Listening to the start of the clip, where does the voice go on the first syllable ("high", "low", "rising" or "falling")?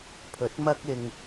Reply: rising